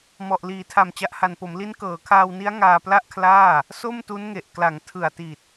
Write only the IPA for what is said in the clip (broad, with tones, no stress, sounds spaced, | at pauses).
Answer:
m ɔ˨˩ ʔ l iː˩˦ tʰ a˨˩ m t͡ɕ a˨˩ ʔ h a˨˩ n p o˩˦ m l i˦˥ n k ɤː˩˦ kʰ aː˧ w n i˦˥ a̯ ŋ aː˧ p l a˥˩ ʔ kʰ l aː˥˩ | s o˥˩ m t u˦˥ n ŋ e˨˩ ʔ k l a˩˦ ŋ tʰ ɯ˨˩ a̯ t i˨˩ t̚